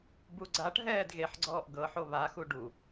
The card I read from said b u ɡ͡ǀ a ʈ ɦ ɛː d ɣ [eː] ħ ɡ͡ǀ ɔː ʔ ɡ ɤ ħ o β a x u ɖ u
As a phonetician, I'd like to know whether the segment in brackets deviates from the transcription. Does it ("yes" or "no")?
yes